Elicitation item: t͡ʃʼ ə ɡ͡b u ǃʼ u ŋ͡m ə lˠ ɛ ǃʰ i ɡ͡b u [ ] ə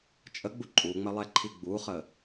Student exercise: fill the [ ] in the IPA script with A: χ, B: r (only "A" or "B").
A